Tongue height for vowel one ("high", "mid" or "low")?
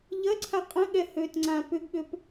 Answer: low